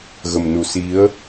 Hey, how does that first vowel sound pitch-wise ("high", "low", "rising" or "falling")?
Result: low